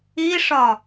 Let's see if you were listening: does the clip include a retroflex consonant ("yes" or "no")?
yes